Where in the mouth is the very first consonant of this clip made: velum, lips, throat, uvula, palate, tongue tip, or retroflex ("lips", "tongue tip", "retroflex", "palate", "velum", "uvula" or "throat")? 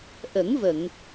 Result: throat